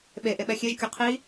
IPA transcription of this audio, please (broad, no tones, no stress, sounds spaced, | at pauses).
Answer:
ɓ e ʔ e ɓ ɛ xʲ e ʒ kʲ o qʰ i